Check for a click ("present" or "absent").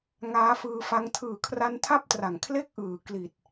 absent